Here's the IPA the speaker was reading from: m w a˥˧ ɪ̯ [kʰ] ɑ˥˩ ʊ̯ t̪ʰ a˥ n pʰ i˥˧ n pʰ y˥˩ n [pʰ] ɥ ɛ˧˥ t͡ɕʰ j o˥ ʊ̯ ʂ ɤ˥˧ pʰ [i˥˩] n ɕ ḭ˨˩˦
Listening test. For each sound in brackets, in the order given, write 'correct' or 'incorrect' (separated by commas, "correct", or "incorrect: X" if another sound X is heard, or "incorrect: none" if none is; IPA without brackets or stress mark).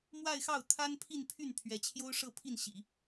incorrect: x, correct, correct